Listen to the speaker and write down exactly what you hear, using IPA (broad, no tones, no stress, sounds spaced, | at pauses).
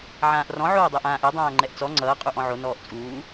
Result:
ʕ ãː ʔ r ɔ̃ ʕ oː dˤ ɛ ʔ ãː ʔ ɛ dˤ ãː ŋ͡ǃ ɛ ʔ t͡s ɔ ŋ͡ǀ ʌː qʼ u ʔ ɔ̃ ʕ o n ɔː ʔ t͡sʼ uː